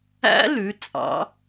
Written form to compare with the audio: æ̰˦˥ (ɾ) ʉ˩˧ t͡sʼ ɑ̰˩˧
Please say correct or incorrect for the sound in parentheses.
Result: incorrect